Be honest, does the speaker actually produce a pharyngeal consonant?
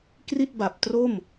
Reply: no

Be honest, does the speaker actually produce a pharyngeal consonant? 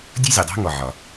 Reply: yes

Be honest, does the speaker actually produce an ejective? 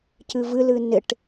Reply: no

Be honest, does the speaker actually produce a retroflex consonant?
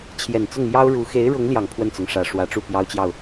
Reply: yes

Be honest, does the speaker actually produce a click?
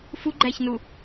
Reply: yes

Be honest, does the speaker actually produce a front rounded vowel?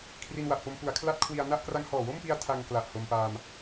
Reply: no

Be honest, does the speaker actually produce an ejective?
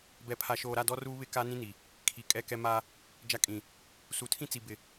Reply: yes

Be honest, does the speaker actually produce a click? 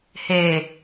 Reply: no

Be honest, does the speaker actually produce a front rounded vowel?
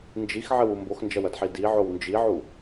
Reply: no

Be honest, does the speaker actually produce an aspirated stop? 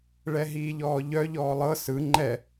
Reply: no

